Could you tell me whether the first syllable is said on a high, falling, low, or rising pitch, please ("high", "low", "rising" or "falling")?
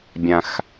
low